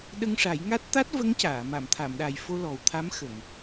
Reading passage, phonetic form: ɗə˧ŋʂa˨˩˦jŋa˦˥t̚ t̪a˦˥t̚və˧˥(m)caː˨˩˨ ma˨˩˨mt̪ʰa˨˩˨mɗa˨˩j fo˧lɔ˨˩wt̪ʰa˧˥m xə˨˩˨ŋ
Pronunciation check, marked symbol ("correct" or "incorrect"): incorrect